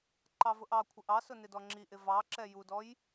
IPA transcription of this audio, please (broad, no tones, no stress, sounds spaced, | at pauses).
ǃ ɑ v ʊ ʔ ɑ kʷʰ ɪ ʔ ɑ s ʊ n ɪ d ɔ ŋ͡ǁ i ʔ ɪ v ɑ ǁ ɛ j u d ɔ j